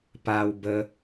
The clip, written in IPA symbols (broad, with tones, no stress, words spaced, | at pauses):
pa˧wbə˧